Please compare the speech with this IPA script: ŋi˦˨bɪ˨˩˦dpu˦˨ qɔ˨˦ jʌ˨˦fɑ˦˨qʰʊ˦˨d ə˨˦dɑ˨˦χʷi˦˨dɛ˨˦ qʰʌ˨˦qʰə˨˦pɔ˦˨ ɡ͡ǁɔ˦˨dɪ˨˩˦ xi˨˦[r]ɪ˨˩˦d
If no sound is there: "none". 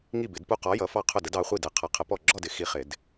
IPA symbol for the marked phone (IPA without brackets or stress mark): χ